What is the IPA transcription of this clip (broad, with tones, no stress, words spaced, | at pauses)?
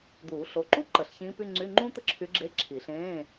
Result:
d̪uː˨˩˦ɬo˩˧˩ǃu˥ ǃə˨˩˦ɬçĩː˧˥py˧˥˧ ŋ͡ǀy˧˥˧ŋ͡ǃũ˥ t̪ə˥ǁʰy˧˥ɡ͡ǁe˧˥˧ ǁʰi˨˩˦ɬẽː˧˥˧